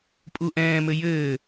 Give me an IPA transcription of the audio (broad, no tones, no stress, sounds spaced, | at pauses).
pʼ u ʔ ɛ̃ː m ɘ j ɘː